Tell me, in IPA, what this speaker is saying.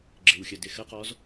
ɡ͡ǁ ɪ˨˩ w xʲ ə˨˩ d ɪ˨˩ x ə˦˥ q ɔ˦˥ z

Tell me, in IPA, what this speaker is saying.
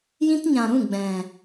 j ĩ˦ t ɲ ã˨ ɾ ũ˦˨ ɡ͡b ɛ̃˨

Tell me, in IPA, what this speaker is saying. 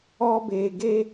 ɔ˦ b eː˧ ɡ eː˦

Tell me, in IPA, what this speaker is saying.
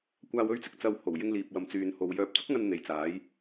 kʷ aː˨ w ɵ˧ ɥ t͡s ɪ˧ k̚ t͡s ɐ˧ w h o˨˩ w j ɪ˧ ŋ l iː˨ p̚ w ɐ˨ m t͡s yː˨ n h o˨ w j œː˧ p̚ t͡s ʊ˥ k̚ ŋ ɐ˧ n n̪ e˨ j t͡s aː˨˥ j

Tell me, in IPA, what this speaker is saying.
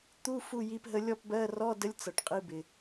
t̪ u˧˥˧ f u˥˨ j i˧˥ p ɦ ə˧˥ lʲ ɔ˥˨ p b ɜ˧˥˧ r ɔ˧˥˧ d ə˧˥ lʲ t͡s ʌ˨ ʈ qʼ i˧˥ b ɪ˨

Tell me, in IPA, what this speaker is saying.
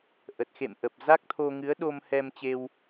ʔ ə˨˩ t̚ x ḛ˧˨ m ʔ ə˨˩ p̚ z a˦˥ k̚ t̪ʰ o˧ ŋ ɨ˨˦ ə̯ ɗ o˧ m h ɛ˧ m t͡ɕ e˧ w

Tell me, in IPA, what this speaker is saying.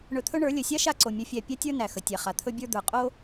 ɳ ɵ˧ t̪ʰ ɵ˦ ɳ ə˞˨˦ lʲ ɵ˨ sʲ a˦ ʃ a˧ ǀ o˨ mʲ ɵ˧ fʲ æ˧ pʲ a˦ tʲ ə˞˦ n æ˨ x ə˨ tʲ æ˨ χ a˨ t̪ʰ ɵ˦ bʲ ə˞˦ d̪ ə˞˨ qʼ o˦

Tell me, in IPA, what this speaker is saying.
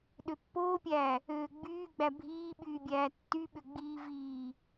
ɗ ø pː oː pʲ æː | øː ɡ͡b yː ɡ͡b æ bʱ iː ɓ yː bʲ æː tː y ɓ ø ɡ͡b iː v iː

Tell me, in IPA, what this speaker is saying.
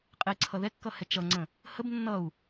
qʼ e ǀʰ ʌ ð ɛ kː ʌ h ɛ t͡ʃ ʌ ŋ͡ǀ ə̃ | h ə b nː ʌ u̯

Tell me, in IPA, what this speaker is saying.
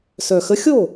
s œ˨˩ x ə˧˥ xʲ o˥˩

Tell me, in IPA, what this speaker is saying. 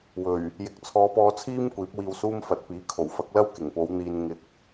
w ɵ˨˩ ɥ | j ɪ˨ k̚ t͡sʰ ɔː˨˧ p ɔː˧ t͡sʰ iː˥ m kʷ iː˨˥ p̚ w iː˧ w s uː˥ m f ɐ˨ t̚ p iː˨˥ kʰ o˨˩ w f ɐ˨˥ k̚ l ɐ˥ w k ɪ˨˩ ŋ p o˨˧ w n̪ iː˧ n ŋ ɪ˧ k̚

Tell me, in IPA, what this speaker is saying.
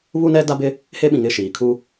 β u˦ n ɛ˦ d a˦ b ɪ˦ | h e˦ ɓ ĩ˨ ŋ ɪ˦˨ ʃ iː˨ kʰ u˦

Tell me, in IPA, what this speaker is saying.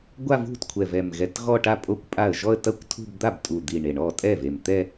ɡʷ a˥˧ v ṳ˥˩ t kʷʰ ɛ˨˩ v ɛ˨˩ m ɣ ɛ˨˩ t ɣ ɔ˥˧ ʈ a˥˩ pʼ o˥˩ kʷ pʼ a˥˩ ə̯ ʒ ɔ˥˧ ə̯ t ɐ˥˧ kʷ tʰ ṳ˥˧ b d̪ a˥˩ b tʼ u˨˩ d̪ i˨˩ ɳ e˨˩ ɳ ɔ˥˩ tʼ ɛ˥˩ v e˨˩ m t̪ ɛ˥˧

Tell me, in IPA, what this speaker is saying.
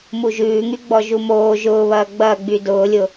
m u ʒ ʉː ŋ y ɡ͡b ɔ ʒ u m oː ʒ ʊː β ɐː ɡ͡b ɐː ɡ͡b y d ʊː lʲ ʊ

